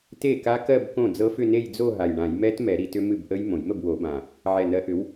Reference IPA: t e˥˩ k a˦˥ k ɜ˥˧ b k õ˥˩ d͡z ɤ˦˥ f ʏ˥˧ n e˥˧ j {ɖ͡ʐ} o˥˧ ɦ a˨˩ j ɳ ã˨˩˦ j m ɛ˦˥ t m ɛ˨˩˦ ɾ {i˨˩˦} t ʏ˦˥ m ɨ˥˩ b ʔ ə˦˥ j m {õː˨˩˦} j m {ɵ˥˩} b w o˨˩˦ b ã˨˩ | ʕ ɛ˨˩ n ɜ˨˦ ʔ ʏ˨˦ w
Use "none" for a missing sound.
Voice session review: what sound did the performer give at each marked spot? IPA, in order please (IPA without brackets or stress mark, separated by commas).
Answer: d͡z, i˨˩˦, õ˨˩˦, ə˥˩